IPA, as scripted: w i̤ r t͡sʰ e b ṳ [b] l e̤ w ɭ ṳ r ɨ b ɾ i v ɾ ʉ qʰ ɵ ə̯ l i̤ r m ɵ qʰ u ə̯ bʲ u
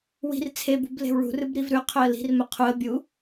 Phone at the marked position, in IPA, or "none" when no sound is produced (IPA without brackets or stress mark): b